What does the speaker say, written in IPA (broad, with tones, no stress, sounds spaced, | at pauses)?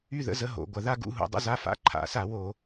y˥˧ ð ə̰˧˥˧ z ə˧˥˧ ɦ o̰˧˩˧ ɡʷ ɐ˧˩˧ ð a˥˧ ɡ ṵ˧˥˧ ɦ ṵ˧˩˧ dˤ ə̰˧˥˧ z a˧˥˧ f a̰˧˥˧ ǃʰ a̰˧˩˧ s a˧˩˧ w o˧˩˧